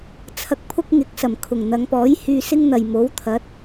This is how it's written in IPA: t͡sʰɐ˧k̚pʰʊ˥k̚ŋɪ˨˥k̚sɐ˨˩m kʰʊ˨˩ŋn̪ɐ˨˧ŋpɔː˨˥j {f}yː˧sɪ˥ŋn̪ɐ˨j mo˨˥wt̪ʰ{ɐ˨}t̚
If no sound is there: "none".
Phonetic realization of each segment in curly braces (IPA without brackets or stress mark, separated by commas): h, ɐ˨˥